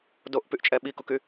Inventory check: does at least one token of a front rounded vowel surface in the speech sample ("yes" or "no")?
yes